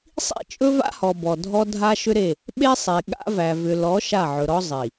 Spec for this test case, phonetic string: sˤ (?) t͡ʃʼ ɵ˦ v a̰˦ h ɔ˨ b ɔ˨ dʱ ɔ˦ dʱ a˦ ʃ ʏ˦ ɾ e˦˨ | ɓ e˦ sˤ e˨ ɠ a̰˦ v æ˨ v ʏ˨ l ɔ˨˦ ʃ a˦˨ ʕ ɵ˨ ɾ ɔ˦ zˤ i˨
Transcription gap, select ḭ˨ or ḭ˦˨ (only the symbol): ḭ˦˨